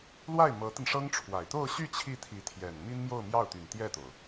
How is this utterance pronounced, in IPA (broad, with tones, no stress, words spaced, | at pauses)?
lwa˥˩ɪ̯ mɤ˧˥t̪ə˧nʂɤ˥ŋʈ͡ʂʰwa˨˩ɪ̯ t̪o˥˧ʊ̯ɕy˥˧ t͡ɕʰi˥˩t̪ʰi˧˥ t̪ʰjɛ˨˩n mi˥nmjo˥˧ʊ̯mjɑ˥˩ʊ̯t̪y˨˩n t̪jɛ˥˩t̪o˩ʊ̯